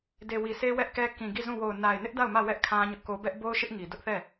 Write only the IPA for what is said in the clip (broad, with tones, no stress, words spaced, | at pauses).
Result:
de˨wi˨se˦ wɛ˦ʔkɛ˦ kĩ˨ɡi˦˨zũ˦˨ wo˨ʊ̯na˨ɪ̯nɪ˦ʔ da˦˨ʊ̯mä˦˨ wɛ˦ʔ kʰã˦ɲʊ˦ʔko˦ bɛ˦ʔbo˦ʊ̯ʃɪ˦ʔ ŋi˨ dʊ˦ʔθɛ˦˨